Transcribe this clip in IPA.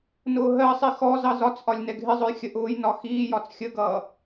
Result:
n ʊː ɦ ɜ sˤ i x ɔ z ɑ z ɒ t͡s ʔ ɒ lʲ n ɛ ɡʱ ɪ zˤ ʊ j xʲ ə ʔ ʊː j n ɒ x iː j ɒ t͡s xʲ ə ɡ ʌː

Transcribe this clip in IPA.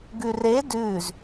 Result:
ɡ ʉ r e d ʉː z

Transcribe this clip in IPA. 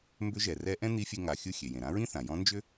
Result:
m b ʏ˧˥ ʒ ɛ˩ r ɛ˧˥ ʔ ɛ̃˥ n̪ i˧˥ fʲ e˧ ŋ a˩˧ xʲ ɯ˧ xʲ e˩ j ẽ˩ ɾ ã˧˥ ɹ ĩ˥ θ ã˩ j ɔ̃˧˥ n d͡ʒ ʏ˥

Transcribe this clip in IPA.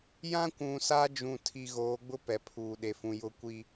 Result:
j ã˦ kʷ ũ˨ s a˦ d͡ʒ ũ˦˨ tʰ i˦ ɣ oː˨˦ ɡ͡b ʊ˦ p ɛ˨ pʰ uː˨ ɗ e˨ f ũ˨ j ʊ˦ kʷ i˦

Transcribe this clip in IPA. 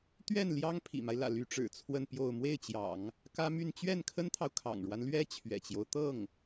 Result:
t̪ ɥ ɛ˥˩ n l j ɑ˥ ŋ pʰ ḭ˨˩ m a˦ ɪ̯ l ä̰˨˩ l y˧˥ ʈ͡ʂ ɻ̩˨˩ t͡sʰ w ə˥˧ n p j o˥˧ ʊ̯ m w e˥˩ ɪ̯ t͡ɕ j ɑ̰˨˩˦ ŋ | k ä˥ m y˥˧ n t͡ɕ ɥ ɛ˥˩ n kʰ ə˥ n t̪ʰ ɑ˨ ʊ̯ kʰ ɑ̰˨˩ ŋ ɻ w a˦ n l ɥ ɛ˥ t͡ɕʰ ɥ ɛ̰˨˩ t͡ɕ j o˦ ʊ̯ t̪ ɤ˥˩ ŋ

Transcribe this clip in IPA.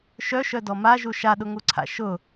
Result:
ʃ œ ʃ œ d ɔ m a ʒ u ʃ a ɗ ʊ ŋ u ǀʰ a̰ ʃ ʊ

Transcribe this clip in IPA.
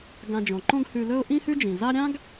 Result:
ɡ ã˨ d͡ʒ õ˩ ǃ õ˦ ɡ h ʉ˨ l ɵ˦ ʊ̯ ʔ ĩ˦ h ʉ˦ d͡ʒ ĩ˩ z a˦ ɾʲ ã˥ ɡ

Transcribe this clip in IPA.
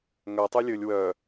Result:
ŋ œ tˤ y lʲ ɵ lʲ w œ

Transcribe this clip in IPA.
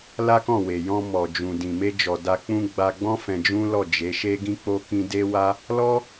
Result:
l a˦ k ɔ̃˦˨ w e˨ j ɔ̃˧ m ɔ˨ d͡ʒ ũ˨ d ĩ˨ m e˧ d͡ʒ ɔ˨ d a˧ k͡p ũ˦ ɡ͡b a˧ ɡ͡b ɔ̃˦ f ɛ̃˧ d͡ʒ ũ˦ l ɔ˦˨ d͡ʒ e˨˦ ʃ e˦ ɡ ĩ˦ k͡p o˦ k ĩ˧ d e˦ w a˦ | l ɔ˦

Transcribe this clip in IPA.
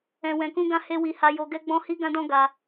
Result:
ɛ̃˨ w ɛ̃˨ k ũ˧ ɡ ã˧ h e˦ w i˧ h a˧ j o˧ ɡ ɛ˦ ɡ͡b ɔ̃˦ h i˦ ɡ ã˦ d ɔ̃˦ ɡ a˧

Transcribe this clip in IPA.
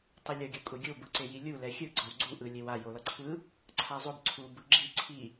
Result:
tˤ ɯ lʲ ʌ ɡʲ ʌ kʷʼ e ɡʲ o b ɯ ǀ e j i lʲ u l ɛ xʲ ɯ ɡ͡ǀ ʌ w ɡ͡ǀ u ʔ ɯ lʲ e w a j o l ʌ ǀʰ ɯ | ǀʰ a zˤ o b ǀʰ u b ɯ ɡ͡ǁ i ǀʰ i

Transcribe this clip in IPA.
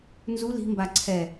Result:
n z u l i̤ m b a ǀʰ ɛ

